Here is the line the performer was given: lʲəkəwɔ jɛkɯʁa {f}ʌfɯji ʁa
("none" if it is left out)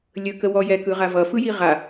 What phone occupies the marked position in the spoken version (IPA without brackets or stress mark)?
v